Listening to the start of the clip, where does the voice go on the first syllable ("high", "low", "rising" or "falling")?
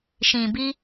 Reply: low